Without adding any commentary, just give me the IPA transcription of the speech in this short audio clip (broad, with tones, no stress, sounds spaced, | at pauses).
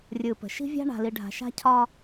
rʲ ɯ˨ p ə̤˨ ʃ i̤˦ vʲ a̤˦ ɳ a̤˨ l i˨ ɖʱ a̤˨ ʃ a̤˦ cʰ ɒ˦